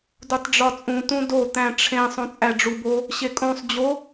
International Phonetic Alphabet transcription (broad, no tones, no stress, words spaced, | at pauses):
dutˤɖ͡ʐɒt͡sʼũ tũdo t̪æ̃ʈ͡ʂʰẽ sˤõt͡sʼæɖ͡ʐubo | ɕekʼõsˤ d͡ʑo